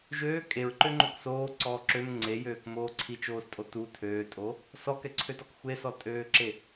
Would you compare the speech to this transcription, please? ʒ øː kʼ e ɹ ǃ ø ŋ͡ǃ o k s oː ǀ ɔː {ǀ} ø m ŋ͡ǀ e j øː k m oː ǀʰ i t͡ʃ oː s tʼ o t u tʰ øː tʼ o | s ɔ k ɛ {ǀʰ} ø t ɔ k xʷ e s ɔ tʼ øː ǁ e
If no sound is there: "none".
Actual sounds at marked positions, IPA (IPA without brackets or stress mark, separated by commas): ǁ, ǀʰ